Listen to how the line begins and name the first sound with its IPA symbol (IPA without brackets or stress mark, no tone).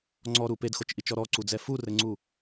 ŋ͡ǀ